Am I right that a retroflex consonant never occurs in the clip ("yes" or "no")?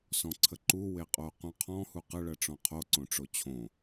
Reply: no